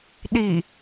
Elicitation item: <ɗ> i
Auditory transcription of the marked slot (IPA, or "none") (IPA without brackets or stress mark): ɗ